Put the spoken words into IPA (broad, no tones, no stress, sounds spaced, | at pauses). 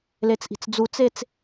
l e t͡s ʔ i̤ t͡s d͡z u t͡s e t͡s